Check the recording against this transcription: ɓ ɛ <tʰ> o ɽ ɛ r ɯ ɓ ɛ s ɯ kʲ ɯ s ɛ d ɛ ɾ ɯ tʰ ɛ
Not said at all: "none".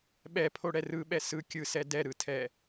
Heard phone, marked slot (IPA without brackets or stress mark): pʰ